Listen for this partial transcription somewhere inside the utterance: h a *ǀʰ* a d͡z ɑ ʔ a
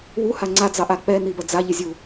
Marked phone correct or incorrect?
incorrect